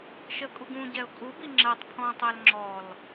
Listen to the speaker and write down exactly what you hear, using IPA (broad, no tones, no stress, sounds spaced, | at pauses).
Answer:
ʃ ə kʼ u ɡ ũ ɟ ɛ ʊ̯ kʼ u b i ŋ͡ǁ ɜ tˤ pʰ ɔ̃ tˤ æ l ŋ͡ǁ ɔ l